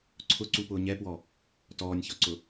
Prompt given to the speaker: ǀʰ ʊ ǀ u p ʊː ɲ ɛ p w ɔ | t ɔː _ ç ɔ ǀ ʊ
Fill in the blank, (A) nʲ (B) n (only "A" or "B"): A